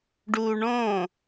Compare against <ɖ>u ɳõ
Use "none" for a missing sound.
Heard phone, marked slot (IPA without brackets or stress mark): ɖ